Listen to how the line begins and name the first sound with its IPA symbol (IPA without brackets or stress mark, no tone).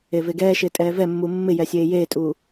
e